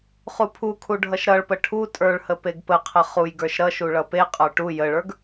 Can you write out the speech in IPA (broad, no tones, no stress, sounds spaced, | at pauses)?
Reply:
χ u pʰ u kʰ u ɖʱ ʌ ʃ ɾ ʌ ɭ p ə ʈʰ u tʼ ə˞ ɭ h ə p e ɡ p ə qʰ ə χ u j ɡ ə˞ ʃ ɾ ʌ ʃ u ɭ ʌ p e qʼ ə˞ ʈ u j ə ɭ ə˞ ɡ